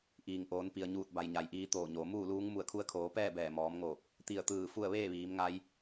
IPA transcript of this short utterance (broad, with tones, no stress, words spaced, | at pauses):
ʔiː˩ŋʔoː˩˧n pi˩ə̯ɲuː˧˩t̚ba˩j ɲa˩jʔiː˧t̪oː˧˩ɲoː˩˧ muː˥˨luː˧˥ŋ mu˧˩ə̯kʰu˧ə̯kʰoː˩˧pɛː˥˨ bɛː˧˩mɔː˩˧mŋoː˧˩p̚ | t̪i˧˩ə̯t̪ɯː˧˩ fu˥˨ə̯ ʋeː˥˨ʋiː˩˧mŋa˧j